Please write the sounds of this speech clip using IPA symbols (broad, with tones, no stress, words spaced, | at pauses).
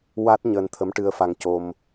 wa˦˥t̚ ɲəː˧nt̪ʰə˧˥mʈɨ˧ə̯fa˧ŋ co˧m